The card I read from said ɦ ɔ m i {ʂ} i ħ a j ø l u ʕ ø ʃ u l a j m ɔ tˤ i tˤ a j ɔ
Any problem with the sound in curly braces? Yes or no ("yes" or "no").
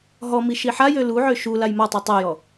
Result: yes